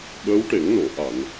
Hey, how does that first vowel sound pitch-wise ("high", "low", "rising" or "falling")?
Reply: rising